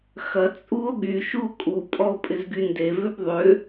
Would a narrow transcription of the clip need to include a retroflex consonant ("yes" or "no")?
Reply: no